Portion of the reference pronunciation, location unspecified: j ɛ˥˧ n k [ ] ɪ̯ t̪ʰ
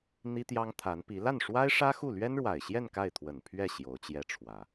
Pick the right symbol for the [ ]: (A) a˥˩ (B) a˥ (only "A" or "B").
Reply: A